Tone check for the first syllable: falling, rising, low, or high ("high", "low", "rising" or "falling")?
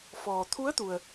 low